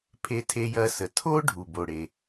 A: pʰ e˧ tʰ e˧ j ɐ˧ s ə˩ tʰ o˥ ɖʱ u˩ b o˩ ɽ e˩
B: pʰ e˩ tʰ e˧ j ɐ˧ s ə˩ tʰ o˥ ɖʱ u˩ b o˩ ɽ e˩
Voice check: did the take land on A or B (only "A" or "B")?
A